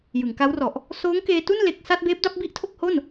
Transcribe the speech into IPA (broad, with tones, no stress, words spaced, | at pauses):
jɯ˩˦ŋka˦˥wrɔ˨˩ʔ | soː˦˥ŋkeː˧tu˥˩n le˦˥k̚ sa˥˩t̚ beː˦˥p̚da˥˩p̚bi˥˩ʔ tʰo˥˩k̚ho˥˩n